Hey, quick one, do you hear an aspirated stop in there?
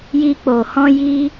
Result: no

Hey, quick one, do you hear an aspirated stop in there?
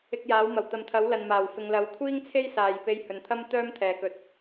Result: yes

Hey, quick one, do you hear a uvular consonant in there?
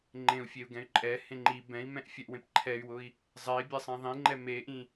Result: no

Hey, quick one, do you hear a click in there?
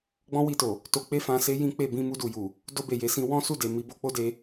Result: no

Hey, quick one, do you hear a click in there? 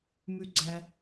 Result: yes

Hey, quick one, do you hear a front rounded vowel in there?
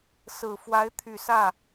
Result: yes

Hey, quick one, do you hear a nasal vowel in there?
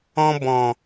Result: yes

